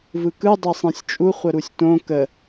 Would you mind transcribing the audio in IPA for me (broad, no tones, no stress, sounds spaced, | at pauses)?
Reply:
v ɯ k ɯ dˤ e sˤ ẽ sʲ t͡ʃʼ u χʷ ə ɾ u sʲ t õ k ə